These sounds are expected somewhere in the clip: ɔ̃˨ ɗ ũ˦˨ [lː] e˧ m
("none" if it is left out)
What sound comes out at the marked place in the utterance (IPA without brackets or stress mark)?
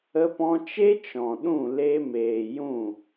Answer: l